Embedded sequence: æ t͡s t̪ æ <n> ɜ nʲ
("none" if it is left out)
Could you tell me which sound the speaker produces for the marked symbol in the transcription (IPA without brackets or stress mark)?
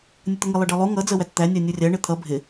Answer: nʲ